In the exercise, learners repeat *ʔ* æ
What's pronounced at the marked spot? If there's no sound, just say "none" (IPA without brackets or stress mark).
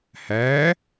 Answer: h